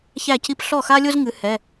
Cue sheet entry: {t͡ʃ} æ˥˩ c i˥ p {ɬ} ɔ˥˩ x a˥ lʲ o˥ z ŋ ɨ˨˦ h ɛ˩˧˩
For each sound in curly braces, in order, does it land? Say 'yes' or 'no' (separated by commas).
no, yes